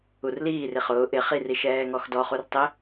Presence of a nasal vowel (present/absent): absent